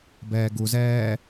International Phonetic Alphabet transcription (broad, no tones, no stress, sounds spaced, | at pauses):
b ɛː ɡ u z ɛː